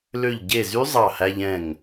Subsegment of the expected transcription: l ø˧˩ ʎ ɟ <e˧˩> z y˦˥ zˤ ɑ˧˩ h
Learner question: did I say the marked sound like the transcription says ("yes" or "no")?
yes